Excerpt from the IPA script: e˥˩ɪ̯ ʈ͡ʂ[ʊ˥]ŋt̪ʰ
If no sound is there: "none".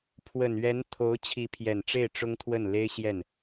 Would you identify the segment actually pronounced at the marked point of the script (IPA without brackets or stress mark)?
ʊ˥